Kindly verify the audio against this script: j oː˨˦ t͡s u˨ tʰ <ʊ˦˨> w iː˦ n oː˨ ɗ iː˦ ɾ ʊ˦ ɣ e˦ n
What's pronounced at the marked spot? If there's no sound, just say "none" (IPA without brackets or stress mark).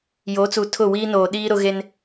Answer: ʊ˦˨